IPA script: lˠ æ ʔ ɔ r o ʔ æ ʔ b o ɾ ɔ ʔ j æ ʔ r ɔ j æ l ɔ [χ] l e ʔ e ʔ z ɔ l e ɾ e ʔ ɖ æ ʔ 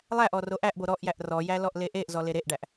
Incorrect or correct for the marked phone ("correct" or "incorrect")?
incorrect